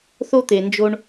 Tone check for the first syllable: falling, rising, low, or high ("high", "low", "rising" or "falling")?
high